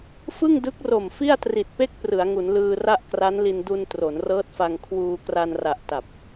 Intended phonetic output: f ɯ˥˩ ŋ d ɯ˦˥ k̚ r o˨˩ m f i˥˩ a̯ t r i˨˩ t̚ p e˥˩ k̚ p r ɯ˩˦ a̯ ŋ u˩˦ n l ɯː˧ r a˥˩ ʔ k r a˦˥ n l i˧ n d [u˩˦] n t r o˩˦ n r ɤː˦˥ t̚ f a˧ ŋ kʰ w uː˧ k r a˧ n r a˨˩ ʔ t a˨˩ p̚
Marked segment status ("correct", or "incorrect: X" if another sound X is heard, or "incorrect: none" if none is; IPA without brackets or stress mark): incorrect: u˧